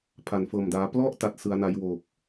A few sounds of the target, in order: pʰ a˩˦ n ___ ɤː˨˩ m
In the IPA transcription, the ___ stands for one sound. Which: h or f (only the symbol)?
f